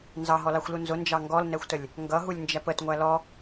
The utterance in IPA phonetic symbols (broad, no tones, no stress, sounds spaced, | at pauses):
n z ɑ ɦ ɔ l ɑ xʷ l u n z ʊ n d͡ʒ ɑ ŋ ɡ ɔ l n ɛ xʷ t ə lʲ | ŋ ɡ ʌ ɦ u lʲ n d͡ʒ æ p ə t ŋʷ æ l ɔ